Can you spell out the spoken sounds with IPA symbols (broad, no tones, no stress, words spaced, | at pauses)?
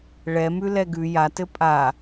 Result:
ɭɛmʉlɛ ɡʉ jatɘ pʼa